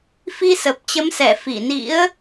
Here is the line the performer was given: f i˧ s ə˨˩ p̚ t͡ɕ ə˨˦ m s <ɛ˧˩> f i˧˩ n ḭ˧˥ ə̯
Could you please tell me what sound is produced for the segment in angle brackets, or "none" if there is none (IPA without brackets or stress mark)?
ɛ˧˩